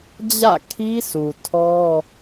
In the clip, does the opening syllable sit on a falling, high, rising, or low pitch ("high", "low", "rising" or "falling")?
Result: falling